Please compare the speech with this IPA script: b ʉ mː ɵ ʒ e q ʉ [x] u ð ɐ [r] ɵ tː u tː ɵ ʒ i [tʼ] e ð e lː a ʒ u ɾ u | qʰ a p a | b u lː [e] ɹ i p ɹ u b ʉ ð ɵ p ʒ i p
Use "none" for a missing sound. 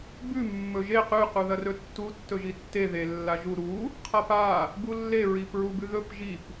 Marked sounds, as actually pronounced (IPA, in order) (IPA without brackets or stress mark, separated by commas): q, r, tː, e